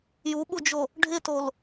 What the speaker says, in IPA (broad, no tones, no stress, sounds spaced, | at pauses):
j u ɓ u d͡ʒ o | ɖʱ ɪ t o l